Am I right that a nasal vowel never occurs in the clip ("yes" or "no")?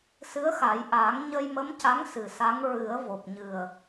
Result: yes